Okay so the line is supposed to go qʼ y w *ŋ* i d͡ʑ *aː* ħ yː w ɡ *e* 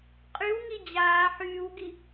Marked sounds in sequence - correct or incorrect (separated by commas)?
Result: correct, correct, incorrect